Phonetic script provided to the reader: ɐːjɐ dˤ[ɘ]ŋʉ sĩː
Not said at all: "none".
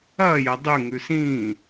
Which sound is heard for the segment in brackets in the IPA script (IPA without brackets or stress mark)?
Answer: ʉ